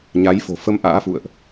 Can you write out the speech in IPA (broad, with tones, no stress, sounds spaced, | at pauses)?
ɲ a˨˦ j f o̤˨˩ f ə˧ m ʔ a̰ː˧˥ f ṵ˧˨ ə̯ ʔ